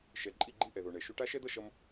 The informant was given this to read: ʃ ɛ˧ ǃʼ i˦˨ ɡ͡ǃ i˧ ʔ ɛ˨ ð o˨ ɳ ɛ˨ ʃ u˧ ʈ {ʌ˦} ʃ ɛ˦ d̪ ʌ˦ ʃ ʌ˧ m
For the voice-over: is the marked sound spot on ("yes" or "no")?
no